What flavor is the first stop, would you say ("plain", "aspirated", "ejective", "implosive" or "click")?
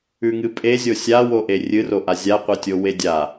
ejective